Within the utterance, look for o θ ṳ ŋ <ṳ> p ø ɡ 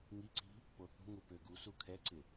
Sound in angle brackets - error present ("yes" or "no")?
yes